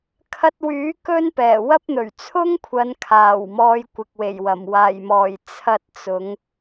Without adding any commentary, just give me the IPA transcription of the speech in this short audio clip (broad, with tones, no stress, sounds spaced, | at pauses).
kʰ ɐ˧ t̚ w yː˨˥ k ɵ˥ n p ɛː˨˩ w ɐ˥ p̚ n̪ ɵ˨˩ ɥ t͡sʰ ʊ˥ ŋ kʷʰ ɐ˨˧ n kʰ aː˨˩ w m ɔː˨ j kʷ ɪ˨ k̚ w e˨˩ j w ɐ˨˩ m w aː˨˩ j m ɔː˨˩ j t͡sʰ ɐ˧ t̚ t͡s ʊ˨˧ ŋ